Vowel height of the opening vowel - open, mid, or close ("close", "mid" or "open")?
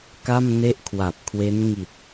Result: open